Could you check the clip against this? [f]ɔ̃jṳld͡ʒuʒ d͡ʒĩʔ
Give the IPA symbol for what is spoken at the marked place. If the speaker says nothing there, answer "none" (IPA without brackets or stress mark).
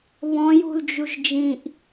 β